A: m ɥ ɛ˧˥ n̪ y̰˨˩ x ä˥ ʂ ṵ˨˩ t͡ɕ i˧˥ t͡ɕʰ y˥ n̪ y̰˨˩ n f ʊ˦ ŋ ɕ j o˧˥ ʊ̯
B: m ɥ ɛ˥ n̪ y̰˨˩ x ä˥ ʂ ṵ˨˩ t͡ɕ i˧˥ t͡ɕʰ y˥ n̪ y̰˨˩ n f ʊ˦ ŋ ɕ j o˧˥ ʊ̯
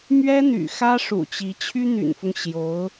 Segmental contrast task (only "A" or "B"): B